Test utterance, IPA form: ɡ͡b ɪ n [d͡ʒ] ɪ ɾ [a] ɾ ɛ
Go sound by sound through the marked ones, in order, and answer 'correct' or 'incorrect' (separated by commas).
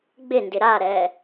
incorrect, correct